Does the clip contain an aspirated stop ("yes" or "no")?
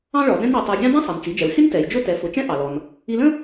no